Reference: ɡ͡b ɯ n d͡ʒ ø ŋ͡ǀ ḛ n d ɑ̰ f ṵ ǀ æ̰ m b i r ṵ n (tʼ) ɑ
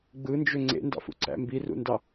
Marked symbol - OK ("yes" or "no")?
no